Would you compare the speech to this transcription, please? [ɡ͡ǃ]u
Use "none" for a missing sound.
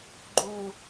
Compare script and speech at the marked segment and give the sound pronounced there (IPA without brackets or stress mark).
ɡ͡ǃ